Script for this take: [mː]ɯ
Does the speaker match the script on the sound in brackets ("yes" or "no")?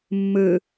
yes